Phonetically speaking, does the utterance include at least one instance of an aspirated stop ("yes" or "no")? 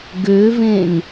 no